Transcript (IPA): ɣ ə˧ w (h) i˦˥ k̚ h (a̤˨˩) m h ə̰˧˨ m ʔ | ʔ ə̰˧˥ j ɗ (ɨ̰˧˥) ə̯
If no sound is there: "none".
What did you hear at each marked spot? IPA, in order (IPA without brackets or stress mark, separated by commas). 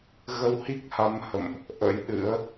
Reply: h, a˨˦, ɨ̰˧˥